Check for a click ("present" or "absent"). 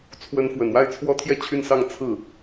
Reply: absent